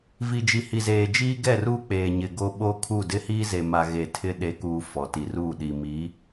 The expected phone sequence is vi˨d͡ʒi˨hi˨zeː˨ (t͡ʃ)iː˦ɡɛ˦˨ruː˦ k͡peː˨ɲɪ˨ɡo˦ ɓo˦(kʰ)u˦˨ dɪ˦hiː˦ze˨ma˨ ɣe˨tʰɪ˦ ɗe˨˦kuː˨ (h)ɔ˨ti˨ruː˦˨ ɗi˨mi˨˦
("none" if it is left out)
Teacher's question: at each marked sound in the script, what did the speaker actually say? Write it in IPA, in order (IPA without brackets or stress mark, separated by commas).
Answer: d͡ʒ, kʰ, f